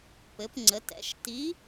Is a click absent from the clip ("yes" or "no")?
no